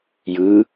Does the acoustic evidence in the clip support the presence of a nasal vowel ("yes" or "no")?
no